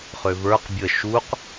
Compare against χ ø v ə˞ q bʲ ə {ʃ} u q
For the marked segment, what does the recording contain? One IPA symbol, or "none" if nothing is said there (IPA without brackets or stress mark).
ʃ